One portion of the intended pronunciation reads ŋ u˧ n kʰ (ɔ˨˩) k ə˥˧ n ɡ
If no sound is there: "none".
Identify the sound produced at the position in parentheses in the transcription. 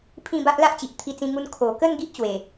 o˨˩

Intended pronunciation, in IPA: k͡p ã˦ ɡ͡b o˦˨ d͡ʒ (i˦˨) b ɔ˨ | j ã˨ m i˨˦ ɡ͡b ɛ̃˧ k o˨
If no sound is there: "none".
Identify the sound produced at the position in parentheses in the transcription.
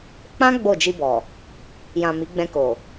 i˧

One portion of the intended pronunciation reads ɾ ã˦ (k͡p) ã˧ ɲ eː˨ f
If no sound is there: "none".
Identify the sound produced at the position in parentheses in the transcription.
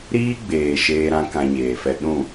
k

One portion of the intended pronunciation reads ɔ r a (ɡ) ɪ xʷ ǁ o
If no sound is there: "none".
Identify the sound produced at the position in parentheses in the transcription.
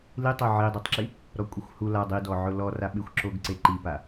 ɓ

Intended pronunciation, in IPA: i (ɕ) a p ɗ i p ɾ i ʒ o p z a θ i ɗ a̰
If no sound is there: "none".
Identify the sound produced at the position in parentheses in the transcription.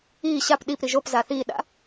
ɕ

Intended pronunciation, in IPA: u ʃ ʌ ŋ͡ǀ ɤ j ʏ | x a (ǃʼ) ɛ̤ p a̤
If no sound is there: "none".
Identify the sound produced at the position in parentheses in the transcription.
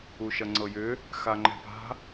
ŋ͡ǃ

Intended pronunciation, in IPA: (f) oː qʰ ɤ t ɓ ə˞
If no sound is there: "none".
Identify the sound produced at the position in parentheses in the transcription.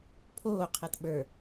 pʰ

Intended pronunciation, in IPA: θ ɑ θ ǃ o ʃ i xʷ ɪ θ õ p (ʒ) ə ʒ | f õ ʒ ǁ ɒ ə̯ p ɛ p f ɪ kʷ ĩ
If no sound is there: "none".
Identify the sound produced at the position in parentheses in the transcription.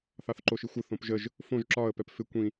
ʒ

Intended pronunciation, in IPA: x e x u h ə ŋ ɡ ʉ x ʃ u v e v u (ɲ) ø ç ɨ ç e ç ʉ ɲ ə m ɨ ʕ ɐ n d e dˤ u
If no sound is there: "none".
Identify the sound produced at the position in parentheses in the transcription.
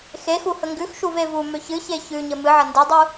m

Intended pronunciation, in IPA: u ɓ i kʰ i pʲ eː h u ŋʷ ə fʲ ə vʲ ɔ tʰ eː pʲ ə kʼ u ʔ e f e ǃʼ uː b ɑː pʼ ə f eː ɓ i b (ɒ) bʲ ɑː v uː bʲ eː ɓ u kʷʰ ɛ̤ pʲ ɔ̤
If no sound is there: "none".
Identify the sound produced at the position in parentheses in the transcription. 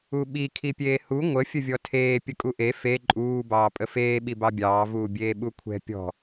ɑ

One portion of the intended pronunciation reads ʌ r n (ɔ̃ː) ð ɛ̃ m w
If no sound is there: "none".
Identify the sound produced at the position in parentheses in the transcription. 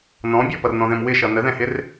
ɔ̃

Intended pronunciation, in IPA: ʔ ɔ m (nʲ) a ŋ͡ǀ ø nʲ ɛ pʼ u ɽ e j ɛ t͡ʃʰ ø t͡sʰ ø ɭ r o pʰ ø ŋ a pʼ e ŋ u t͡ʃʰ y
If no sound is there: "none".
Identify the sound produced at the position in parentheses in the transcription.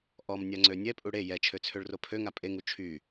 nʲ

